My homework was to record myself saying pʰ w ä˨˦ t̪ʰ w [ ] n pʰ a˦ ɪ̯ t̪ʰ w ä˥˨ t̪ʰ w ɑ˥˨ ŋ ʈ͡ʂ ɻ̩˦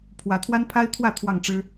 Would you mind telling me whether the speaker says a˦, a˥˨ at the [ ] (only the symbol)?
a˦